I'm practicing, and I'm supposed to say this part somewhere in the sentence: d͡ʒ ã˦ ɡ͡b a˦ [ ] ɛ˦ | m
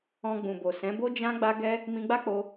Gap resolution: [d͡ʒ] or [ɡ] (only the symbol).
ɡ